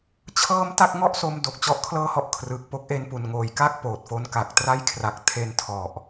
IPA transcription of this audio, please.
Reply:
t͡ɕʰ ɤː˧ m t a˥˩ k̚ ŋ ɔ˥˩ ʔ s o˧ m d o˨˩ k̚ t͡ɕ ɔ˥˩ ʔ kʰ l ɤː˥˩ h ɔ˥˩ ʔ kʰ r ɯː˨˩ k̚ p o˦˥ k̚ ʔ e˧ n p u˨˩ n ŋ oː˩˦ j k a˥˩ k̚ p oː˨˩ t̚ f o˧ n k a˨˩ k̚ t r a˦˥ j kʰ r a˨˩ k̚ tʰ e˧ n tʰ ɔ˨˩ ʔ

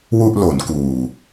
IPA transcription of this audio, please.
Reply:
w u˥˩ ʔ l o˩˦ n k uː˨˩

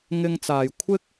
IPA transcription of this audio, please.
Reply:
ŋ ɪ˥ ŋ t͡s aː˧ j kʷʰ ɪ˥ k̚

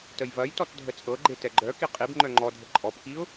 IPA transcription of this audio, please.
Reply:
t ə j v ɐ j t ɔ t dʱ ə t͡sʼ ɤ ɡ͡ǃ e t ɛ ɡ͡ǃ œ k i qʼ i b ŋ͡ǃ œ ŋ͡ǃ ɔ dʱ ə ǃʼ ɔ p k i ʊ̯

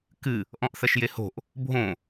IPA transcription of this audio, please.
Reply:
k ɨ | ʔ ɔ̃ ʔ θ ɐ ʃ j e h o̤ ʔ | bʱ õ

